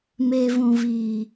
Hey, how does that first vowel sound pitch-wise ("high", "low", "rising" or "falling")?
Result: low